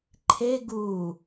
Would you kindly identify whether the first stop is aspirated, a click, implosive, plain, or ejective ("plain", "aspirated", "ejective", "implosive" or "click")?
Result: click